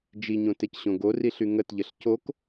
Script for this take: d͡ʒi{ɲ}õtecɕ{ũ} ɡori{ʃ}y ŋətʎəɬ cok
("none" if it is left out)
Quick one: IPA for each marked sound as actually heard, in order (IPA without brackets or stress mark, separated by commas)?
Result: ɲ, õ, ɬ